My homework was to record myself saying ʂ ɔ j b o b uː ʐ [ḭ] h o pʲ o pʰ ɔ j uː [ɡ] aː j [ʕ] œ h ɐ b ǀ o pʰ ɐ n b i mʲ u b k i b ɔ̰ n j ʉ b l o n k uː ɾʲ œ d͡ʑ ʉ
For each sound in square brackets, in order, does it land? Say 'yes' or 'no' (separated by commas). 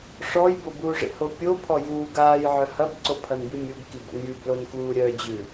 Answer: no, yes, yes